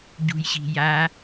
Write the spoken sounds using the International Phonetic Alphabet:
ɟṳjɕi̤ja

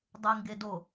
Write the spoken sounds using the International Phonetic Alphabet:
dˤeŋɡedo

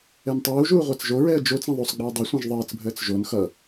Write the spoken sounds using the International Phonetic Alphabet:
ɛntˤuːʒuː ʁʷat͡sʒoɹɛə̯ d͡ʒot͡s ɛ̃ðˤosˤɡ͡biə̯ dˤasʷɛ̃ʒ ðˤəːt͡sbʱəːt͡s ʒon xʌ

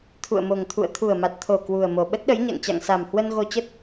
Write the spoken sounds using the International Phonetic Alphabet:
t̪ʰṵ˧˨ə̯mo˨˩ŋt̪ʰṵ˧˨ə̯ t̪ʰu˨˩ə̯ma˨˩t̚t̪ʰo˨˩ kwu˨˩ə̯mo˨˩ ɓə˦˥t̚ɗə˨˦jɲa̰˧˨ŋt͡ɕa̰˧˨ŋ sa˨˩mhwə˧n ɣo˧t͡ɕə˦˥t̚

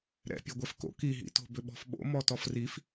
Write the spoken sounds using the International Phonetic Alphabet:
ɾɛ̰ pʲɛɡʷɛfko̰ kiɦḭto̤ bʏɓɔ̤fɓo̰ mɔtɔfrif

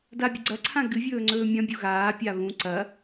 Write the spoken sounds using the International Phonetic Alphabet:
dabʲɐɡ͡ǀɐǀʰã ɡɨvʲɵː ŋ͡ǀɵːmʲɐ̃bʲu ɣaːpʲa βũ ǀɐ

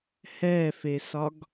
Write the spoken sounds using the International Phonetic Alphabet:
hɛfesɒɡ

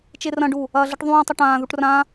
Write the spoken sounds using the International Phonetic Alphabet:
t͡ʃerɐ̃ɖu | ɐːɮɘʈðˤũːtˤɐ ʈãːðuʈ rã

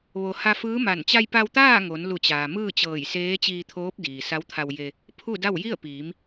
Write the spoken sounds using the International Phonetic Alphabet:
ʋo˩ ha˧ fɯː˧˥ma˧˩n t͡ɕa˧jpa˧wt̪aː˥˨ ŋo˩˧nlu˧˩t͡ɕaː˩ mɯː˥˨t͡ɕɤː˧˩jseː˧˥ t͡ɕiː˧t̪ʰoː˧˥p̚ diː˩sa˧˥wt̪ʰa˧wje˧ | pʰu˥˨da˥˨w ji˥˨ə̯piː˩˧m

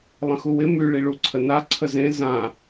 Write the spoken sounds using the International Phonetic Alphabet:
lˠə̃xuwɪ my ɭiɭuǀʰəna ǀʰəzẽ zã

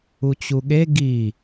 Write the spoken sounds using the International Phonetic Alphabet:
ut͡ɕuɠe ɡi

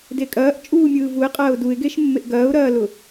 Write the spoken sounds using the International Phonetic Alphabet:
dekʼɐːʔ t͡ʃʼuːmʲɯːvuɪ̯ qʼɐːʊ̯duɪ̯ɡeʃ mːeʔɡɐːʊ̯ɾɐːlʊ

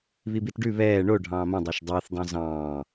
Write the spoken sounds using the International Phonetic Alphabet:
βibitɖʉ βɛː ɳo ɖʱɑ̃ːmõ dˤɛʃdˤeːθ dˤõzɑ̃ː

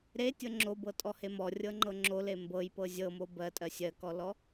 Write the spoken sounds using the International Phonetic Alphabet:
ɾetʲɤ ŋ͡ǁobɤtʼɔhe mɔrʲɤŋ͡ǃɤ ŋ͡ǁole mbɤjpɤ zʲɤmo bɜtʼɜ sʲɜkɔlɔ

